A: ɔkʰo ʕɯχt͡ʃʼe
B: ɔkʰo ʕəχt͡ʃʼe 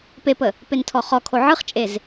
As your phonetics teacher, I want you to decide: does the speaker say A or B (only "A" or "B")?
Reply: A